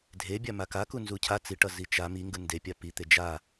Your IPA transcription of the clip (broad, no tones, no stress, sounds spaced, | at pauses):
dʱ e bʲ a m a k a k u n z u cʰ a t͡s i ʈ ʌ z i t͡ʃ a m i ŋ ɡ ɯ n d e pʲ a p i t̪ e d͡ʒ a